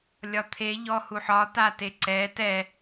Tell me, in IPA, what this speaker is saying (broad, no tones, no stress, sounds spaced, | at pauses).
lʲ ɒ t̪ʰ e ʎ ɔ h u ħ ɒ t a t e ǀ ɛ t ɛ